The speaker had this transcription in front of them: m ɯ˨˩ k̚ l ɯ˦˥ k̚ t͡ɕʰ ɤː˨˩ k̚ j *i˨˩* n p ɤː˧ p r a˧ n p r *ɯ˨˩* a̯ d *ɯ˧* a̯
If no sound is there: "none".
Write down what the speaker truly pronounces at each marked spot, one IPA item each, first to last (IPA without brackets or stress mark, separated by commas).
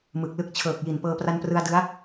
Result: i˨˩, ɯ˧, ɯ˦˥